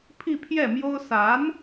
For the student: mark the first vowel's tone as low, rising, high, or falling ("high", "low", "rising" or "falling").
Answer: falling